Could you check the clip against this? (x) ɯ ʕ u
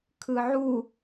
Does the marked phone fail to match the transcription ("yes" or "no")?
yes